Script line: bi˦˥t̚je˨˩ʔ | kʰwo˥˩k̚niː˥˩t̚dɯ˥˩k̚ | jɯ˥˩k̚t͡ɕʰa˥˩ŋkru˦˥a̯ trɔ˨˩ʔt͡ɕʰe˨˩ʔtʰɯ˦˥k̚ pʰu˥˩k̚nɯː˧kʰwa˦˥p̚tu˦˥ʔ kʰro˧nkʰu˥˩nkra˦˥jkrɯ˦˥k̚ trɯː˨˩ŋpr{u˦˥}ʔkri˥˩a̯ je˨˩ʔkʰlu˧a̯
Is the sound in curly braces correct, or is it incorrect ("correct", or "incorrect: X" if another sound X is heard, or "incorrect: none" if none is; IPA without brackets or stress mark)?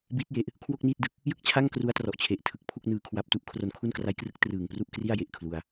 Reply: incorrect: u˥˩